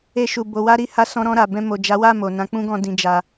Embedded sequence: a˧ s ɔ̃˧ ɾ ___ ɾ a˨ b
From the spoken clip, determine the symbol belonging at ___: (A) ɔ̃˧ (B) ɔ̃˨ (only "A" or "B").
A